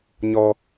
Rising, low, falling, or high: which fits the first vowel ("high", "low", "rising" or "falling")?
high